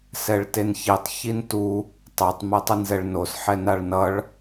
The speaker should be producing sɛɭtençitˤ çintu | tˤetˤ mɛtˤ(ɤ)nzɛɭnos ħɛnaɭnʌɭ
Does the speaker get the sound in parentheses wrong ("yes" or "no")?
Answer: yes